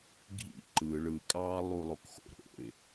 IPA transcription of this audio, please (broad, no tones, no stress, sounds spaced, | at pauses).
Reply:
ɡʱ ḭ ǃ ɯ ɭ ɯ kʼ ɑː lˠ u lˠ o k x o̰ ɾ o̰ ɪ̯